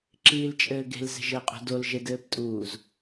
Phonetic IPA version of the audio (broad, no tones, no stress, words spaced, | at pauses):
ǁiːlt͡ʃʼɘːɡe̤l ze̤ʒɘːqʼṳdol ʒedɘːptʼuːz